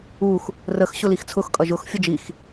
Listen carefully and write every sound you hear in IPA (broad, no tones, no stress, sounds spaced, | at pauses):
u x | r ə x ɕ ʊ l i x t͡sʰ ʊ x kʼ ʌ ʒ ʊ x fʲ ə d͡ʒ i x